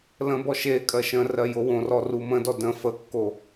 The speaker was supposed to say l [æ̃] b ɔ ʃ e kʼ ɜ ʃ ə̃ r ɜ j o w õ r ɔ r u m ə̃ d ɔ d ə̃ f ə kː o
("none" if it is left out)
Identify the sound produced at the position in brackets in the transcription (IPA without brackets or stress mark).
ə̃